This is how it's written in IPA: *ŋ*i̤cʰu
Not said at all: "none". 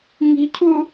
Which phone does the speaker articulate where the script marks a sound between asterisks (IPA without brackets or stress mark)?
ŋ